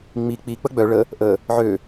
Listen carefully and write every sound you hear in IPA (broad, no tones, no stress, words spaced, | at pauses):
ŋ͡mi k͡pi k͡pəɡ͡bœ ɭə | ʔə | ʕø